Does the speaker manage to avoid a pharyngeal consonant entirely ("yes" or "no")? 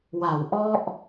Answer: yes